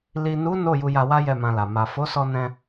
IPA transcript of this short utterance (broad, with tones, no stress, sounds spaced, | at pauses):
l i˨ n u˨˦ n o˦˨ j u˧ j a˧ w a˦ j ɛ˦˨ m ã˧ l a˨ m a˨ f o˨˦ s ɔ˧ n ɛ̃˧